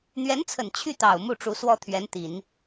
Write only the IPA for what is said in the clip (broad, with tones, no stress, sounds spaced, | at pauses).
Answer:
n̪ ɥ ɛ˧˥ n t͡sʰ ə˨˩ n t͡ɕʰ y˥˩ t̪ ɑ˨˩ ʊ̯ m u˥˩ ʈ͡ʂ u˧˥ s w ɔ˥˩ t̪ʰ ɥ ɛ˧˥ n t̪ i˨˩˦ n